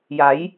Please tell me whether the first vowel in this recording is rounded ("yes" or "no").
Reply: no